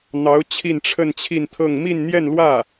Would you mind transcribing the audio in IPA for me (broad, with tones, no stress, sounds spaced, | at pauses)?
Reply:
n̪ ɑ˧˥ ʊ̯ t͡ɕʰ i˥˧ n ʈ͡ʂʰ ə˥˧ n t͡ɕʰ i˥˧ n t̪ʰ ɤ˥˧ ŋ m i˥˧ n n̪ j ɛ˥˧ n l w ä˥˩